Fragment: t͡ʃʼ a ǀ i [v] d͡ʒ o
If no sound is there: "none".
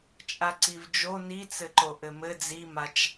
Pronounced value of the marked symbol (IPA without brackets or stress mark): v